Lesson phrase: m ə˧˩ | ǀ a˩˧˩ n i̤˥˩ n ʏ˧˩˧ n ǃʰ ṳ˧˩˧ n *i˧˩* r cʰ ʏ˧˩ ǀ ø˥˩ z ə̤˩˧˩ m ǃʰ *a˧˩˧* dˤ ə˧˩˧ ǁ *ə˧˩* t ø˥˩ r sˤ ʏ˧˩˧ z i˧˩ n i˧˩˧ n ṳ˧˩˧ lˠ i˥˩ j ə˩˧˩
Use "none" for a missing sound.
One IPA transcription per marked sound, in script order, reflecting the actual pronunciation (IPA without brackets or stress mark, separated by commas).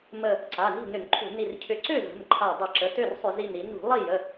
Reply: i˧˩, a˧˩, ə˩˧˩